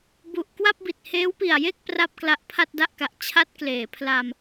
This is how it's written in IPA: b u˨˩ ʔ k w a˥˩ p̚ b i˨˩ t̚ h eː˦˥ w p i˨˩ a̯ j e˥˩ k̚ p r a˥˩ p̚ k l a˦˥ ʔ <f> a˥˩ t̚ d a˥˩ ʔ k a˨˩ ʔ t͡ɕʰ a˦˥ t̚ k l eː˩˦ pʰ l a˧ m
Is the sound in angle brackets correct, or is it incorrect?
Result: incorrect